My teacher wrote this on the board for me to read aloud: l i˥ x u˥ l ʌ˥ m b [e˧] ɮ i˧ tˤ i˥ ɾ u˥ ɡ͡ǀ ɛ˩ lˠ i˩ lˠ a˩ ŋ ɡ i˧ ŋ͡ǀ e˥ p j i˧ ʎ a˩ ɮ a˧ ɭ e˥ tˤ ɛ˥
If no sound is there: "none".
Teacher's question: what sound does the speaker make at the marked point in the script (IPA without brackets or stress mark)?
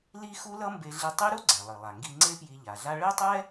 e˧